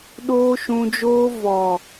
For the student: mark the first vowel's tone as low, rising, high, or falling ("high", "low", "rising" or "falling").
high